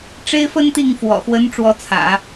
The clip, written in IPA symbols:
ʈ͡ʂ e˥ ɪ̯ f ə˥ n t̪ i˥˩ ŋ f w ɔ̰˨˩ x w ə˧˥ n ʈ͡ʂ w ɔ˧˥ t͡sʰ ä̰˨˩˦

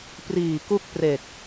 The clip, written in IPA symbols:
p r iː˨˩ k u˥˩ k̚ p r e˨˩ k̚

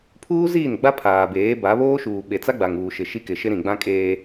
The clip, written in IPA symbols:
pʰ uː˦ z iː˦˨ n ɡ͡b a˦ pʰ aː˨ b eː˨˦ b a˨˦ β oː˦ ʃ uː˨ ɓ e˨ t͡s a˦ ɡ͡b a˨ ŋ uː˨ ʃ ɪ˨ ʃ i˦ k ɪ˨ ʃ ɪ˦ ɾ ĩ˨ ɡ͡b ã˦ kʼ eː˦

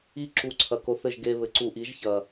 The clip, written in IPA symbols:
i˧ ǁ u˧ ǀʰ ɐ˨ k o˧ θ ɘ˦˨ ʒ ɡ e˧ β ɘ˨ ǀ u˨ ʔ i˨˦ ʒ ç ɐ˨

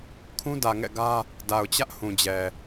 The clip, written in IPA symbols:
kʰ ũ˦ d ä˨ ŋ ɛ̰˦˨ ɡ ä˦ | d a˨ ʊ̯ t͡ɕ ä˦ ʔ h ũ˨ d͡ʑ ɛ˨

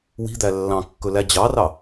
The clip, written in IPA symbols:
w i̤ d̪ æ lː ɑ̃ kː ɵ l æ d͡ʑ ɑ r ɑ

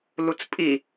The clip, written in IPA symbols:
l u t͡s pʼ i

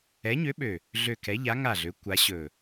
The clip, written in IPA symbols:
ɛ˨˥ ɲ ø˨˥ ɓ ø˨˩ | ɮ ø˨˩ k ɛ˩˧ ʎ a˩˧ ŋ a˨˩ ɮ ø˩˧ kʷ a˩˧ ɕ ɵ˨˩

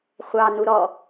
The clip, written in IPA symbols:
χʷ ɑ n u ɾ ɔ

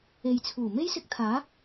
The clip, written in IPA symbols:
e˨ j t͡sʰ uː˨˩ m e˥ j s ɪ˧ k̚ t̪ʰ aː˨˥

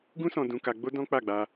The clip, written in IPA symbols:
ɡ ũ˦ s ɔ̃˧ d ũ˧ k a˧ ɡ͡b o˦ d ɔ̃˦ k͡p a˦˨ ɡ͡b a˧

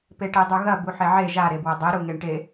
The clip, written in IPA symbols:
p e ʈ e dˤ ʉ ɣ ɐ b u ħ e ʕ e ʒ a ɾ e b w ɐ dˤ i ɾ u ŋ e ɳ ʈ e

